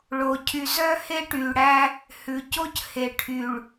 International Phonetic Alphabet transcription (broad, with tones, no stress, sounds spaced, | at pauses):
ɭ o˨ cʰ y˨ z œ˦ h e˦ ʈ yː˨ ɽ æ˦ | h ʉ˨ c o˦ c h e˨ ʈʰ y˨ ɭ